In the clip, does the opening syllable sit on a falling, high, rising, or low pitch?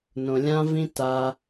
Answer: low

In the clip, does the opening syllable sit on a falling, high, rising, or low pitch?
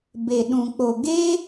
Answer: low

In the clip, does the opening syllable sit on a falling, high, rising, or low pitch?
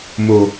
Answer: low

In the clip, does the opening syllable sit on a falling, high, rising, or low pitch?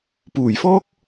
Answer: low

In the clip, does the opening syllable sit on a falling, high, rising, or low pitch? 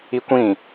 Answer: high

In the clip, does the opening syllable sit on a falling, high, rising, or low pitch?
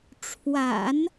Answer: low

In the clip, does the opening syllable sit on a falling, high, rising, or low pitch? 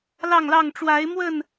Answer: falling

